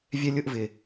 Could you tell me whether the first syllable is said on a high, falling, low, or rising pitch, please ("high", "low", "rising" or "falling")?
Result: high